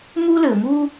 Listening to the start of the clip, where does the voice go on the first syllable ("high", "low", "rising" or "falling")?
high